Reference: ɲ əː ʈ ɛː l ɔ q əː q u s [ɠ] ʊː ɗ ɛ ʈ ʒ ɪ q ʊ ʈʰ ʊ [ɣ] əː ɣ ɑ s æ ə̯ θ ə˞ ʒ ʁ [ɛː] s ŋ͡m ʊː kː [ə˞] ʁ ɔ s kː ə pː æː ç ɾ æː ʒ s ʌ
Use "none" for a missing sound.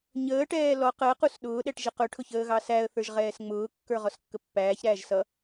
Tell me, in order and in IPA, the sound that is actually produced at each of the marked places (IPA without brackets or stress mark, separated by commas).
ɗ, ç, ɛː, ə˞